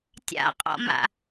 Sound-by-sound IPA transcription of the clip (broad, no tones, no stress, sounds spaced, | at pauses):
tʲ a̰ qʼ ɔ̰ m a̰